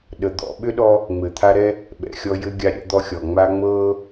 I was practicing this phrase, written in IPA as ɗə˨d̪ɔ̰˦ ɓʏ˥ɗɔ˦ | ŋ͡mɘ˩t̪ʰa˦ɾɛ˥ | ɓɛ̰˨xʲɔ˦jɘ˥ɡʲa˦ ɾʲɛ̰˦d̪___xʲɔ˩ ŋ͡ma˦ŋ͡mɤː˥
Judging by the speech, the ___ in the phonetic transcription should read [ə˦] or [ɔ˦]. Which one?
ɔ˦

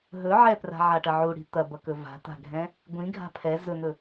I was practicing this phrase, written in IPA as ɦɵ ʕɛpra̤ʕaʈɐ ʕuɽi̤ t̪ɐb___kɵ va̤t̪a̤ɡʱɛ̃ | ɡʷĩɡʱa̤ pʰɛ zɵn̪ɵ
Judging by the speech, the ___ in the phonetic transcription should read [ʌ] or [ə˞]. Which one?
ʌ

